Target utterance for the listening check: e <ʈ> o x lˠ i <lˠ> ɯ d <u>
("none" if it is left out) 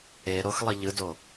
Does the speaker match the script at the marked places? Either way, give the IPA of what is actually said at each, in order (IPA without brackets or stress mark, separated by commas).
ɾ, ʎ, o